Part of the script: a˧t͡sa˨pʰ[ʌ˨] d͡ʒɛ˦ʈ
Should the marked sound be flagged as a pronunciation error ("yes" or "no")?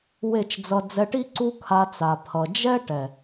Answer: no